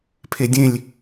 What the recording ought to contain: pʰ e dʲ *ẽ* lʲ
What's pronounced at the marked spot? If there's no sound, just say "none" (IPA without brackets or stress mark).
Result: ẽ